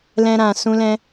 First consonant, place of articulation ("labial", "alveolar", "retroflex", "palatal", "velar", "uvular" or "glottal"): alveolar